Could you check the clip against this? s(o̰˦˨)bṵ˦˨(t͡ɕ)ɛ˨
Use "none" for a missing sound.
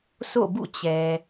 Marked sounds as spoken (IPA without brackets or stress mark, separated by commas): o̰˦˨, t͡ɕ